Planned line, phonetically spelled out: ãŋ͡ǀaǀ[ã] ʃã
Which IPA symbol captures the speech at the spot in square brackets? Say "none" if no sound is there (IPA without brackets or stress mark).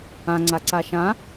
a